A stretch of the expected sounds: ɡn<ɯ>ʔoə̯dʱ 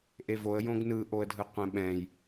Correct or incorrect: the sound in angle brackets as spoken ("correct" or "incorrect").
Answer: correct